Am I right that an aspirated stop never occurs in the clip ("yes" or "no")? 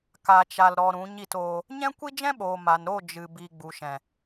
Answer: yes